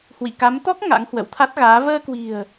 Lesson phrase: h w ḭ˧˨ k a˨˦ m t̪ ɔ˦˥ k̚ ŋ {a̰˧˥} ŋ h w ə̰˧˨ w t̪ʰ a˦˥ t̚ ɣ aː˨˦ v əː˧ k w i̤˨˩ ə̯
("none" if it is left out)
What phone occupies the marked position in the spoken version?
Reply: a̰˧˥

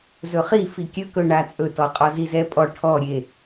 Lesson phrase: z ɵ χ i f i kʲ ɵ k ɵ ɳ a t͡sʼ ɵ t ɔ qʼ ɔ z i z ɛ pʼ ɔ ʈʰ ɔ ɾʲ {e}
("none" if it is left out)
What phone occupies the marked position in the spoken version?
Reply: e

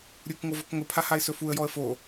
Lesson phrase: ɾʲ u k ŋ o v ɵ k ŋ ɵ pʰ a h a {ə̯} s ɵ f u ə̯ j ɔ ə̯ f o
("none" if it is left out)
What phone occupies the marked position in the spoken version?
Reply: ɪ̯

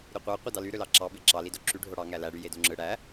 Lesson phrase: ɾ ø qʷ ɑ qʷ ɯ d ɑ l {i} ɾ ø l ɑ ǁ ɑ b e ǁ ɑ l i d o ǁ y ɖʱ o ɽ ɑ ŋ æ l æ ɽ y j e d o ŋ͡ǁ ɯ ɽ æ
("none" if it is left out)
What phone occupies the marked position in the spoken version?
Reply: y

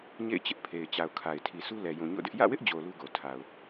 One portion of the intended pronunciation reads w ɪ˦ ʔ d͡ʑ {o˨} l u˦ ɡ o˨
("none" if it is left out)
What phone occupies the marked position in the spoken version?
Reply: o˨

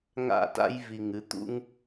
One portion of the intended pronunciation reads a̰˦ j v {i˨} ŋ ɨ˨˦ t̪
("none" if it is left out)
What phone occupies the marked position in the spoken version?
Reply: i˨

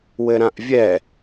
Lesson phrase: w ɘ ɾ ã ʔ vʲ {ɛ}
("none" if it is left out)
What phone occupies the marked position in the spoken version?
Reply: ɛ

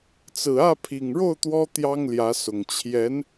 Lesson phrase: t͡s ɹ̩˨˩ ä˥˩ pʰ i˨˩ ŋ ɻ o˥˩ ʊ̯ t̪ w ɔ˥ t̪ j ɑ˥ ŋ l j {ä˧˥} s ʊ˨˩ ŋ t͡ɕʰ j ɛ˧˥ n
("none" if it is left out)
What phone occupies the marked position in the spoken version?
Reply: ä˧˥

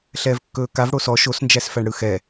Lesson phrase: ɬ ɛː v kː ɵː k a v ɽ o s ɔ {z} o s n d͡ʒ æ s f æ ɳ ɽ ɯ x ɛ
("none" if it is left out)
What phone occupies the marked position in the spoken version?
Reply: ʃ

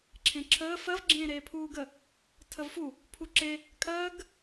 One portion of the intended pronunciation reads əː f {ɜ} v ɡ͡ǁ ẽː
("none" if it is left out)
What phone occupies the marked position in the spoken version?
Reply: ɜ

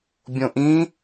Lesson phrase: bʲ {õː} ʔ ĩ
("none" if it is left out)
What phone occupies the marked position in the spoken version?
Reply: õ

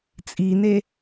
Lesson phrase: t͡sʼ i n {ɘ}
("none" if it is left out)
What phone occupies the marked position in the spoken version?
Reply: e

